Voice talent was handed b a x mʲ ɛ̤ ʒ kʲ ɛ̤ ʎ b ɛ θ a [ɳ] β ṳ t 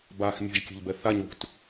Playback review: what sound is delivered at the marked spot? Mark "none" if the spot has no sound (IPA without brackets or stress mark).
ɲ